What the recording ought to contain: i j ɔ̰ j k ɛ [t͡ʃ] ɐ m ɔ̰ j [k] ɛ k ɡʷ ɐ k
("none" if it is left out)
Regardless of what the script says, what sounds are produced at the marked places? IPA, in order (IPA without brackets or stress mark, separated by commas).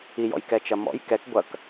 t͡ʃ, k